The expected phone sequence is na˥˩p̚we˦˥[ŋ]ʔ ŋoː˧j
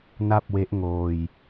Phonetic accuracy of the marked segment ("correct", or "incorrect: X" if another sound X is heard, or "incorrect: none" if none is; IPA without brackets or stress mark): incorrect: none